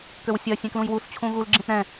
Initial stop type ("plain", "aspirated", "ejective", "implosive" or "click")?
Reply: plain